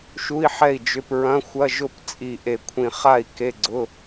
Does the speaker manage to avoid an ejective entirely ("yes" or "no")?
no